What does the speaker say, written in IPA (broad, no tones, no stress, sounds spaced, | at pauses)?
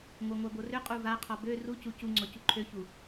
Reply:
ŋʷ a ŋʷ a b o r ʏ qʼ u v a qʰ ɔ b ø r u c u c u ŋ͡ǀ ɔ c u ǃʰ ø ç u